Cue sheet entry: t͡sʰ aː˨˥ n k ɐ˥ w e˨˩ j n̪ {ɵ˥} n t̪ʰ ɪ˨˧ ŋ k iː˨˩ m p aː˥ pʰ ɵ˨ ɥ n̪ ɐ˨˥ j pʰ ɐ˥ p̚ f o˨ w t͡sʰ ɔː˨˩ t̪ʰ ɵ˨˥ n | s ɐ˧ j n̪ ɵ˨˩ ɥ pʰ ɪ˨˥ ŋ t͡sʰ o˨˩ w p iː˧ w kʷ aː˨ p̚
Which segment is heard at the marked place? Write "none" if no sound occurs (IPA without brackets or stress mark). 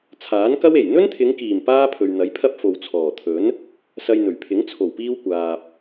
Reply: ɵ˥